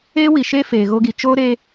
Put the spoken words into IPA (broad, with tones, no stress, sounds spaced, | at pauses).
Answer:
eː˦ w i˨ ʃ eː˦ f eː˨ ɣ oː˧ ɡ i˨ t͡ʃ oː˦ ɾ eː˧